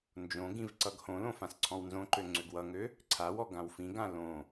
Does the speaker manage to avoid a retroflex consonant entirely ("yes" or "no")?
yes